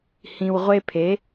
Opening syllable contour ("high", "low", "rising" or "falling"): low